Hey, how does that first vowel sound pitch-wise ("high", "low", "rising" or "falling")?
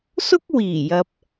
high